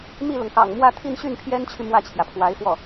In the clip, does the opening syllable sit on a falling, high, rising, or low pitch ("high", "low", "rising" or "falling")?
falling